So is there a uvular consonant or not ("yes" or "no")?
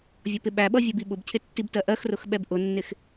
no